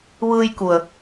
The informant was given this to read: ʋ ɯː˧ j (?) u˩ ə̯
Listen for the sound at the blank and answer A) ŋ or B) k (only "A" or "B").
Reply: B